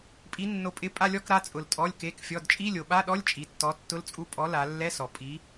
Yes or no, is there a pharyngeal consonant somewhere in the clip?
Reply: no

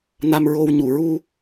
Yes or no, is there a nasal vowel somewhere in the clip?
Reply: no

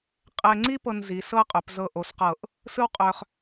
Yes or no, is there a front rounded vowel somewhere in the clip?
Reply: yes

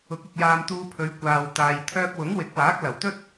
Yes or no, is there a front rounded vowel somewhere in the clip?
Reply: yes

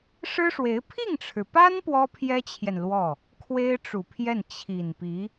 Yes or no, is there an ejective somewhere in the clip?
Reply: no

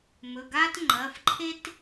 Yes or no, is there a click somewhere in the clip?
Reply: yes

